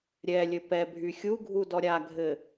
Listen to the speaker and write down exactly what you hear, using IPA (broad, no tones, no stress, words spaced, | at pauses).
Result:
ɾʲɛlʲɘ pɛbʱy xʲuɡʱu dɔɾʲaɡʱɘ